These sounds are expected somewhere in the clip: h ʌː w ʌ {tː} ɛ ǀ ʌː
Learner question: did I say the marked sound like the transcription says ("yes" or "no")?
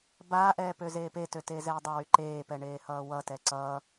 no